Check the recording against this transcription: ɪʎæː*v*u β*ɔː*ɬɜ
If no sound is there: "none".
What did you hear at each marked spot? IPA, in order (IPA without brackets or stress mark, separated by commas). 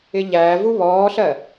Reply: v, ɔː